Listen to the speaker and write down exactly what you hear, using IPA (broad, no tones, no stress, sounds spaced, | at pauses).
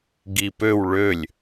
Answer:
ɡ i p ø w ɭ ø lʲ